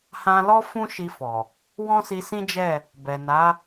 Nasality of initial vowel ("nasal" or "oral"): nasal